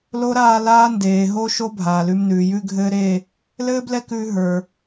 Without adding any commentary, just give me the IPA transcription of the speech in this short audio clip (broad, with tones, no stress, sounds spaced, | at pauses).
l o˥ ɾ aː˥˧ l aː˧ n d eː˩ ɦ o˧ ʃ o˥ bʱ aː˩ l ʉ˧ m n ʉː˩ j ʉ˥˧ ɡʱ ɘː˥ ɾ e˥˧ | l ɘː˥ b l ɛ˥ k ʉː˧ ɦ ə˞˩